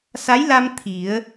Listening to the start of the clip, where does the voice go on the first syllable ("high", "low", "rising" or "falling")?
rising